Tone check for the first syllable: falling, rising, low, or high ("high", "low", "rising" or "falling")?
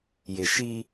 low